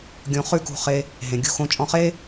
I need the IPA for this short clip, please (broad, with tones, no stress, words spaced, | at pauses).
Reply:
ɡʲõ˧χʉ˥kṳ˧χe˧ | ɦẽ˩ ɡʲṳ˧xõ˧ t͡ʃʼɔ̃˧χe˥